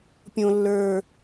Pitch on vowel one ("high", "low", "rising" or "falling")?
high